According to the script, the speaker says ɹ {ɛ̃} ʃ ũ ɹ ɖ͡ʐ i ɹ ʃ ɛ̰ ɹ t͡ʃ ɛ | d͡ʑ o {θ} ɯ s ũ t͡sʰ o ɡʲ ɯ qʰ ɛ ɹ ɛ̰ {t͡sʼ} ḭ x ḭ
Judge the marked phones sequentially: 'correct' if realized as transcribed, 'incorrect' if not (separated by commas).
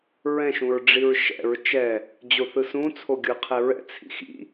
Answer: correct, correct, incorrect